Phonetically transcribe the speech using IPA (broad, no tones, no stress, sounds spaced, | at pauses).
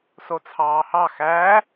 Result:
s o t͡sʰ ɑː h ɑ x æ